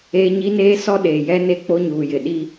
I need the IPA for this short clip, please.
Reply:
eː˦ ɲ i˦ n eː˦ s ɔ˦ ɗ eː˨ j ɛ˦ n e˦ k͡p o˦ ɲ uː˨ j ɪ˨ ɗ i˦

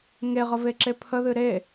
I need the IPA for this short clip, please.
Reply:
ŋ e ʁ ə v e ǁ e pʰ ə ð ɨ ɾ e

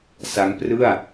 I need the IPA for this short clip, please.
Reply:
s a˦˥ ŋ p r ɯ˥˩ a̯

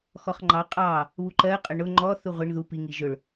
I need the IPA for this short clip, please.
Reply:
x ɔ χ ŋ͡ǃ ɑ qʼ ɑ | β u ǃ ɜ qʼ ə ɳ ʊ ŋ͡ǃ ɔ θ u ʁʷ ɪ ɳ ð u p i ŋ i ʒ ʊ ɭ

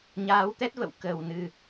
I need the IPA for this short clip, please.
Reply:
ɲ aː˨˦ w t̪ ɛ˦˥ t̚ v ə̰˧˨ w k əː˨˩ w n ɨ˨˩

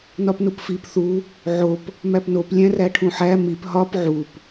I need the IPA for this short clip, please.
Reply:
n ɒ p n u p f i p θ u | ʕ o p | m æ p n o p lʲ æ̃ r æ ʈʰ ũ ħ æ m i p ɦ ɒ p ʕ u p

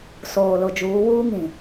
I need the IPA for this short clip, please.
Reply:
s oː˨ l ʊ˨ d͡ʒ uː˨˦ w uː˦ ŋ ĩ˨

